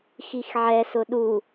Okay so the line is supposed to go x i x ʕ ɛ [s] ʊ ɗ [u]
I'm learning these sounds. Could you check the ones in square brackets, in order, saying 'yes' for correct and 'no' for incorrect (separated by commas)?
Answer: yes, yes